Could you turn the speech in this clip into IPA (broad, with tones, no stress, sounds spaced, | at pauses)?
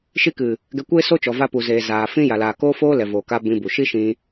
ʃ i˧ k ɨ˨ | ɡ ɛ˧ kʷ eː˦ s o˦ t͡ʃ ɔ˨ v a˧ p u˨ z eː˨ z aː˨ f ĩ˦ j a˨ l aː˨ k oː˦ f oː˦ l ɛ˨ v o˨ k a˧ b ĩ˧ b u˨ ʃ i˦ ʃ ĩ˧